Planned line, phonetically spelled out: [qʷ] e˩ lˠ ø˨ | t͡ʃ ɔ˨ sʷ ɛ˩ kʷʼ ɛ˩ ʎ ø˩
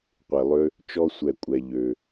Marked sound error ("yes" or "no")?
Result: no